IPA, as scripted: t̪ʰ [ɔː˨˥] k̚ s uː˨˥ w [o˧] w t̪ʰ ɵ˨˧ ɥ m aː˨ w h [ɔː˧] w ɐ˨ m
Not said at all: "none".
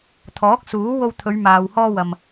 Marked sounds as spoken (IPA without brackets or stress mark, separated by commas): ɔː˨˥, o˧, ɔː˧